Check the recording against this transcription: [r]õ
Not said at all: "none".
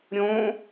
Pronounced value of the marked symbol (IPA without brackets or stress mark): ɾʲ